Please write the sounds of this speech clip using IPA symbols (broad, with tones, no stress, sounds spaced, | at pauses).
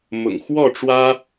m ʊ̰˨˩ ŋ x w ɔ˥˨ ʈ͡ʂ w ä˦